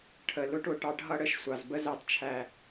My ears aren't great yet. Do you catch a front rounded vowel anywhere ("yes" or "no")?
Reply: no